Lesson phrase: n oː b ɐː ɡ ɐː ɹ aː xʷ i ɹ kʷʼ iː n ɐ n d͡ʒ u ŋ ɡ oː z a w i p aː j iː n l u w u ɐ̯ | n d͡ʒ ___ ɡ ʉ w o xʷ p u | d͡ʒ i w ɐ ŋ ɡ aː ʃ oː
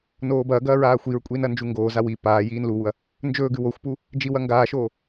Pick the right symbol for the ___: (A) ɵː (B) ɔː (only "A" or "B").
A